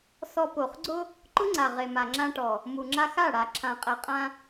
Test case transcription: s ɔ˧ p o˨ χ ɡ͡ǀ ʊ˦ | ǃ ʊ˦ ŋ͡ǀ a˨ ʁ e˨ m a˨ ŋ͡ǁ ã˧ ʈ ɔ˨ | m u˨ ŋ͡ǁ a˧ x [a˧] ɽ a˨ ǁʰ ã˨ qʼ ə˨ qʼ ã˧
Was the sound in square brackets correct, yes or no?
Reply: no